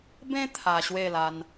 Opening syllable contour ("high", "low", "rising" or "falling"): high